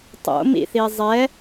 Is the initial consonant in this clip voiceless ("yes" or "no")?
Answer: yes